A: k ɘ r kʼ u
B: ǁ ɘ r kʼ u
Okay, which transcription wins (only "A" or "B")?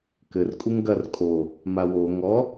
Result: A